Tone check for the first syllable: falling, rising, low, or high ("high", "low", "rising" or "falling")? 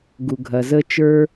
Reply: low